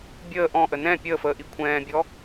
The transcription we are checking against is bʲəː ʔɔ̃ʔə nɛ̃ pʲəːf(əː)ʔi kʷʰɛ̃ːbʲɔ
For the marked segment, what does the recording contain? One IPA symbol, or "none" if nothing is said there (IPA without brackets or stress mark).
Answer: əː